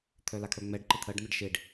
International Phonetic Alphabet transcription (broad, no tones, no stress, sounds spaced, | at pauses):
t̪ʰ œ l a kʰ œ ŋ͡m ɛ ɖ ǃ ə t̪ʰ ɜ ɖ n̪ ə ɖ ʃ e ɖ